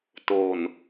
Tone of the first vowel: low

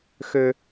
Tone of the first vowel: high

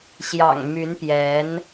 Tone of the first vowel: low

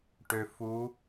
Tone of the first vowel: low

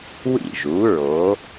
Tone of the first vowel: falling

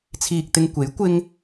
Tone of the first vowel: low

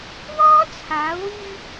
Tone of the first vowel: high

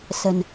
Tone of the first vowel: low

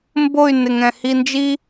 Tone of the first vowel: falling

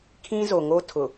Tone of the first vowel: high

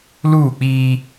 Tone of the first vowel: falling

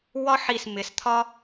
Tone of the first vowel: high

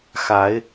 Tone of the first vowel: rising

